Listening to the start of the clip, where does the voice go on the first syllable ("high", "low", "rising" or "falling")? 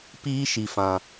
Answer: high